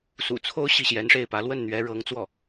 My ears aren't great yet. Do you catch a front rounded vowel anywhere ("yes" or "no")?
no